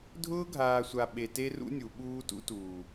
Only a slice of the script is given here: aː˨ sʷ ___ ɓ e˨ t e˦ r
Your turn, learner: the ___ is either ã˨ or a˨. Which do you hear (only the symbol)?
a˨